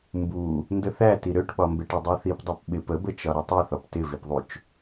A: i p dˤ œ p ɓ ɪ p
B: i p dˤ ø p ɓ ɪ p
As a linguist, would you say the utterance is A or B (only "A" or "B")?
B